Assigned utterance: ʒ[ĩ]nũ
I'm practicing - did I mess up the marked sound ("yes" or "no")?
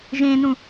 yes